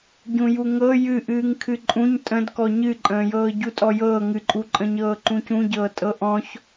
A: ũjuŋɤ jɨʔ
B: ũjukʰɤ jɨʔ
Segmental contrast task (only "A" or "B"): A